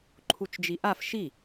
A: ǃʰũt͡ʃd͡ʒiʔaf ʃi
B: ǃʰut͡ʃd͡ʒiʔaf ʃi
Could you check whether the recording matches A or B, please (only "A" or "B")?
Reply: B